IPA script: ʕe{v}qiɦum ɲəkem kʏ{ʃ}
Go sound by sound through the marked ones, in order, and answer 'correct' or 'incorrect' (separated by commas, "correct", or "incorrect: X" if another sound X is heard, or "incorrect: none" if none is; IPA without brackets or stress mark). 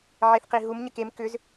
incorrect: θ, incorrect: z